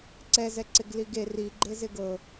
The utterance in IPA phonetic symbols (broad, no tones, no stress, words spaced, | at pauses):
ǀɛzɛǀɪɡ liɡe riɡ͡ǃezɪ ɡɤ